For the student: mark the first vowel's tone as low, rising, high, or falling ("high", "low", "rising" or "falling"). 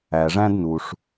low